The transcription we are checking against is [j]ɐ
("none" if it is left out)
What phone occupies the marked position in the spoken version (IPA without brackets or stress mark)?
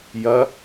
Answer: j